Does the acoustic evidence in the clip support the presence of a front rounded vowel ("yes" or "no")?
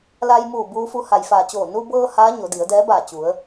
no